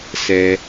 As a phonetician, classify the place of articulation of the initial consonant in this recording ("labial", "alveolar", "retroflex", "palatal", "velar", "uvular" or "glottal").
alveolar